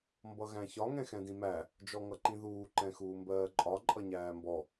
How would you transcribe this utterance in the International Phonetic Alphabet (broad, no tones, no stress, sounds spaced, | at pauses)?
m b ʌ ɣ æ̃ ç ɒ ŋ ɛ̃ x ɛ̃ d ĩ m æ | d͡ʒ ɔ ŋ ʌ ǃ ĩ ð uː ǃ ɛ̃ x uː m b ɜː ǃʼ ɒ ǃʼ ʌ ɲ æː m b ɔ